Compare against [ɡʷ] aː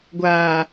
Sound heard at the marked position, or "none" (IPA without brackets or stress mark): ɡʷ